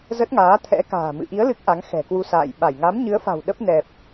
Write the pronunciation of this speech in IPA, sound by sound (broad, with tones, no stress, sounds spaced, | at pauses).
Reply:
z ə˦˥ t̚ ŋ aː˨˦ t̪ʰ ɛ̰˧˥ k a̤ː˨˩ m ɨ̰˧˨ ʔ i˨˦ ə̯ l ɨ˦˥ k̚ ʔ a˨˦ ŋ x ɛ̤˨˩ k w u˧ s a̰ː˧˨ j ɓ a˧˩ j ŋ a˨˦ m ɲ ɨ˨˦ ə̯ f a̤˨˩ w ɗ ə˦˥ p̚ n ɛ˨˩ p̚